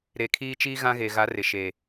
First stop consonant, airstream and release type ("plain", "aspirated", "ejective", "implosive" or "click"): aspirated